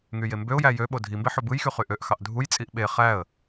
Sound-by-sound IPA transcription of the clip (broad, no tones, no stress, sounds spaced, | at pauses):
ŋ y j e m b ø ʊ̯ j æ j ø ɓ o dʱ i m b e ħ o b ɯ j x y χ y ʔ ø ʔ x ɑ ʔ dʱ u j t͡sʼ i ʔ ɓ e χ æ ə̯